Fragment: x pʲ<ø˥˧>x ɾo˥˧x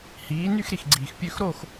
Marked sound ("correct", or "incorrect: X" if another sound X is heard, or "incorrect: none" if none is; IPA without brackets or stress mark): correct